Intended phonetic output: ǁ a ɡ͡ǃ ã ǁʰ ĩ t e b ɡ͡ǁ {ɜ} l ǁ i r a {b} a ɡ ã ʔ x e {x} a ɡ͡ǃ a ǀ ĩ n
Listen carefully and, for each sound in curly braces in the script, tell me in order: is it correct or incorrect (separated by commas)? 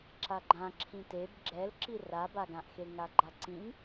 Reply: incorrect, correct, incorrect